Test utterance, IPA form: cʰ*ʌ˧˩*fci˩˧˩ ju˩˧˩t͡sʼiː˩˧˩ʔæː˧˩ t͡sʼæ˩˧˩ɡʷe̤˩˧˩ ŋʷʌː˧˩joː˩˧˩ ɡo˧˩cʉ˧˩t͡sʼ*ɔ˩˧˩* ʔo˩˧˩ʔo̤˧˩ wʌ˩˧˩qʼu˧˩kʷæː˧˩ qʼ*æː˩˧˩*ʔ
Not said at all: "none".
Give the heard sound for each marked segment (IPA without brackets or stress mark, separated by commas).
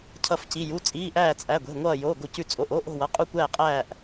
ʌ˧˩, o˩˧˩, æː˧˩